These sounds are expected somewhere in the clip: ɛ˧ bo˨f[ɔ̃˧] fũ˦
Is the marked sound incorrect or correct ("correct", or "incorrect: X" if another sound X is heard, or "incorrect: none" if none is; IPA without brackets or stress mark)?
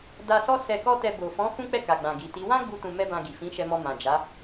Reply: incorrect: ɔ̃˨˦